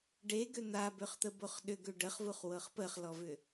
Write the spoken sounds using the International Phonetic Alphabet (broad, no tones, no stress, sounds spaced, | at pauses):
ɖ e ɡ ø n̪ a b ø χ t̪ ə b o χ ɗ ʏ ɡ ø ɖ ə χ v u χ w ɤ χ p ə χ l ɔ v ʏ